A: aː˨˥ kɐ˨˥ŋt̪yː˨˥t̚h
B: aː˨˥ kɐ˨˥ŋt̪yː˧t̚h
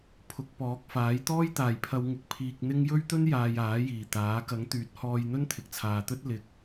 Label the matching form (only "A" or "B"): A